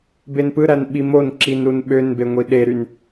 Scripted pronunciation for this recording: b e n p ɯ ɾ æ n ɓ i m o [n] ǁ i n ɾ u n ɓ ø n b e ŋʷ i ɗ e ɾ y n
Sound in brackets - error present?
no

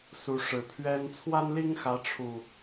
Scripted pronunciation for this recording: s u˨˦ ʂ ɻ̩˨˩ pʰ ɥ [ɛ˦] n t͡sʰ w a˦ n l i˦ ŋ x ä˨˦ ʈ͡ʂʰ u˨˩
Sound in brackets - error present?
no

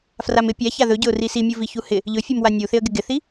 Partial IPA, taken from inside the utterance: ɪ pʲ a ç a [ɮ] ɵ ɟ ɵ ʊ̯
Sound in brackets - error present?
yes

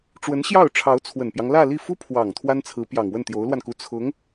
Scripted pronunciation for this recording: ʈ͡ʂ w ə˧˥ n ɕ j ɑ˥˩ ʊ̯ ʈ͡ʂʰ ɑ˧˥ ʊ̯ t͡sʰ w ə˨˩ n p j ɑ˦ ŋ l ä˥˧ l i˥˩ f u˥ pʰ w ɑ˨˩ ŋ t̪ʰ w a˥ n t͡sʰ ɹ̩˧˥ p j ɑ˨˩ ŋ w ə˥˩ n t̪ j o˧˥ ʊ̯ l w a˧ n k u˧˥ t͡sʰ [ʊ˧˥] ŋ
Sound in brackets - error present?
no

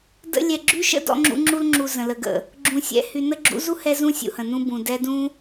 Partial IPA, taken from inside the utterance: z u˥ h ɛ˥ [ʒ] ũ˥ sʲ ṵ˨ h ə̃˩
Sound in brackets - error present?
yes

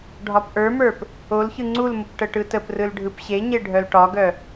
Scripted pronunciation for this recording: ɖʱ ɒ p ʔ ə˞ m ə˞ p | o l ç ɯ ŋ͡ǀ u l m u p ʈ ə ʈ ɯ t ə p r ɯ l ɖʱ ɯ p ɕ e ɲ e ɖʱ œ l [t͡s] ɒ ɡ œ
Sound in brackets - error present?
yes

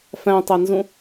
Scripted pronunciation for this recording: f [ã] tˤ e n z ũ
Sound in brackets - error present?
yes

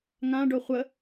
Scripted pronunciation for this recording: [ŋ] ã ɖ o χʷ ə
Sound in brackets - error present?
no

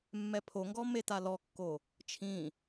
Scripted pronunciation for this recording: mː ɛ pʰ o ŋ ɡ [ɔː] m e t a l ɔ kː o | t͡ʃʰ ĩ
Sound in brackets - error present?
yes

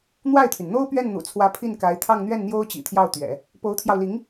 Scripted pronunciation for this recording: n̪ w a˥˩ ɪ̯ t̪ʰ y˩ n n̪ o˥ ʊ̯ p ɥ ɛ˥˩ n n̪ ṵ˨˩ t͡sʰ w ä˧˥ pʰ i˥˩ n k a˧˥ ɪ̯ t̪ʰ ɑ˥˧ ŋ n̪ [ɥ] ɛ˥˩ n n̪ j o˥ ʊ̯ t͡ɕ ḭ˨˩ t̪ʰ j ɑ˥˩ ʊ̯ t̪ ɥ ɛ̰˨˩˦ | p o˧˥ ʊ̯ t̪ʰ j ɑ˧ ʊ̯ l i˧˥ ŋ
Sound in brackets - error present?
no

